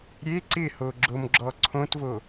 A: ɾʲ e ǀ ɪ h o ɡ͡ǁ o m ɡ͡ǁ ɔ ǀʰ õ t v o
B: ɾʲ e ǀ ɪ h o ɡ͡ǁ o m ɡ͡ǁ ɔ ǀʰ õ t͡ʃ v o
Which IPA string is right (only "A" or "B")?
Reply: A